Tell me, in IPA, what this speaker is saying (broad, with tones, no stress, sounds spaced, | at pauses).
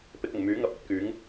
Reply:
p ɪ˧ k̚ ʊ˨˩ ŋ m yː˨˥ ŋ ɐ˨˥ p̚ ɐ˨˥ t̚ k yː˨˥ ŋ